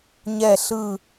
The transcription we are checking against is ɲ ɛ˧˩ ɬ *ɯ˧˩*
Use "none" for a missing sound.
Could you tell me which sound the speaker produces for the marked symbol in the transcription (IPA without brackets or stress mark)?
ɯ˧˩